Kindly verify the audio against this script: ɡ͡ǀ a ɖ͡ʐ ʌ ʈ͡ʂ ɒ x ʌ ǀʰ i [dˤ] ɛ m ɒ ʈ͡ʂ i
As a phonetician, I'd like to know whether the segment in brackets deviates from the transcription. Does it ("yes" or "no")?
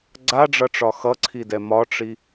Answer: yes